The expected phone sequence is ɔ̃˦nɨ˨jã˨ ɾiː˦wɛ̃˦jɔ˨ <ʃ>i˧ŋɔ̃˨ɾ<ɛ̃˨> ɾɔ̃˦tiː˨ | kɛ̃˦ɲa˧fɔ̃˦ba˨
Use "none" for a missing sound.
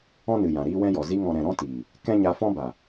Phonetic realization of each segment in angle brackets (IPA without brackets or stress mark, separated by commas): z, ɛ̃˨